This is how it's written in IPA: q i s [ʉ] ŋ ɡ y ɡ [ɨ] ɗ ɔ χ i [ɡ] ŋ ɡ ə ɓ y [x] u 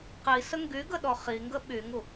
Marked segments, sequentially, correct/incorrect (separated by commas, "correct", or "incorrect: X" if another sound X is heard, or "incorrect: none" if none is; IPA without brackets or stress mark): incorrect: ə, incorrect: ə, incorrect: none, incorrect: ŋ